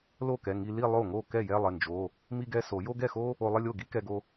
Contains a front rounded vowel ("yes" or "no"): no